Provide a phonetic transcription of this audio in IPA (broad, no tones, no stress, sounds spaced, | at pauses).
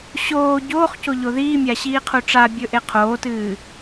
ɕ oː ɟ oː χ c o ʎ o ð iː mʲ a ɕ iː qʰ u ʈ͡ʂ a bʲ ɵ ʔ e qʰ oː t ɨː